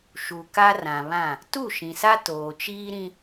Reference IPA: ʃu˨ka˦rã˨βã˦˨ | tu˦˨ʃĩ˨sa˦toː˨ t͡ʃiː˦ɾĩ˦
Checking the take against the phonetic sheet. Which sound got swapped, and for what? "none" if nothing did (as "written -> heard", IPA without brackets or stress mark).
none